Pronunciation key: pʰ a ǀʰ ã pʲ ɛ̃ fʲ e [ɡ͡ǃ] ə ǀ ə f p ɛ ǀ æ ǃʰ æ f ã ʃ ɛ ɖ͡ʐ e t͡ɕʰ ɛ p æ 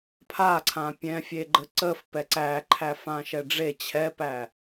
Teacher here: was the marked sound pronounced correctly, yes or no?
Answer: yes